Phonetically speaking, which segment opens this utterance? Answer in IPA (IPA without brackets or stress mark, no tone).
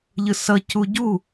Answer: ʎ